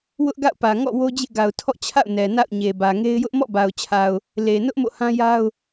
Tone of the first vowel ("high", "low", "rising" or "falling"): high